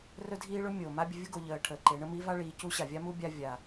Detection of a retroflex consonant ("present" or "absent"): present